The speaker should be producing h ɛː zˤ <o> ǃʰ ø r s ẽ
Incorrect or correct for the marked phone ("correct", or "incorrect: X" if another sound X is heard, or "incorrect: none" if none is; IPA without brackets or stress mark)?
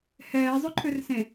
incorrect: ɵ